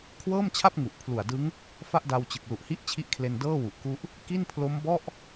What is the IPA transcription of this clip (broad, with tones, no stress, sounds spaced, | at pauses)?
kʰ w ɤː˥˩ m t͡ɕʰ a˥˩ p̚ ŋ u˨˩ ʔ pʰ l u˨˩ a̯ d ɯ˦˥ ŋ | f a˥˩ ʔ d a˧ w t͡ɕ ɯ˨˩ k̚ l u˨˩ ʔ h i˦˥ ʔ t͡ɕʰ i˦˥ ʔ kʰ l e˧ n d ɤː˥˩ w u˨˩ ʔ k u˦˥ ʔ | k i˥˩ n pʰ l o˦˥ m b ɔ˥˩ ʔ